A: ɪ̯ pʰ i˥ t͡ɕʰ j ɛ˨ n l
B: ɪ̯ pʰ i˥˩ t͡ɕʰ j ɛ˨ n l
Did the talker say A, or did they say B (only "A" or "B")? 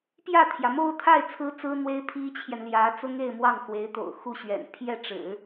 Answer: A